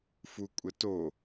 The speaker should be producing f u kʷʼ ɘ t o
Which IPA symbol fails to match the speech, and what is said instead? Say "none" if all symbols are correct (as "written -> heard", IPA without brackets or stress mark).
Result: none